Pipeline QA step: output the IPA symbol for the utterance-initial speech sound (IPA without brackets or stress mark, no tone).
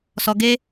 s